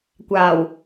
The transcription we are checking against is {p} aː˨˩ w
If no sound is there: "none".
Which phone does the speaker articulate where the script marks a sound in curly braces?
kʷ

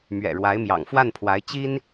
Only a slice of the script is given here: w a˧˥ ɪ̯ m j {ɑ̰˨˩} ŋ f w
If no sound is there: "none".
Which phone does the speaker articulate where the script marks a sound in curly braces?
ɑ̰˨˩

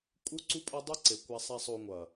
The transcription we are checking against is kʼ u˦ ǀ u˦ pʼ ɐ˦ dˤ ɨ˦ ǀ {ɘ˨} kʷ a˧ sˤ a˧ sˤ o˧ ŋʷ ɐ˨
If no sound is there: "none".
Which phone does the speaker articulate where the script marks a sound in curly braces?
e˨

